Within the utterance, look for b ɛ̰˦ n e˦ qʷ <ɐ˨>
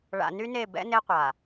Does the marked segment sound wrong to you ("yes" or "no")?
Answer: yes